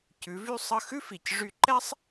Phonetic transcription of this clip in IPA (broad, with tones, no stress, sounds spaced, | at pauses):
c ʉ˩˥ v y˥ sˤ ə˥˩ x ʉ˥ f i˩ c ʐ y˧ ǃ ɛ˥ sˤ